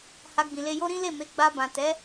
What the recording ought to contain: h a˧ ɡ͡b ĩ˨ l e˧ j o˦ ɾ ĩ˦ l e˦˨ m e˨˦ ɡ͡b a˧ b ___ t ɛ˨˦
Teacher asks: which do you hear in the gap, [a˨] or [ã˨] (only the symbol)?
ã˨